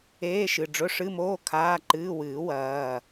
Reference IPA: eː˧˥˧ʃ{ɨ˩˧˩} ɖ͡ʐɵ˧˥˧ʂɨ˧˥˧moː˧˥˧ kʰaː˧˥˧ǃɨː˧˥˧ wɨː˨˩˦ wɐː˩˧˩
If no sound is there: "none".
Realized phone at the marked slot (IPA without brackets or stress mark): ɨ˩˧˩